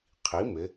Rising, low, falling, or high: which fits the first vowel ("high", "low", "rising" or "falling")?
rising